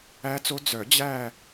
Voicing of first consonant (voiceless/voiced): voiceless